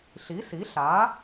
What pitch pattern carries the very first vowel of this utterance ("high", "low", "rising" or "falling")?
rising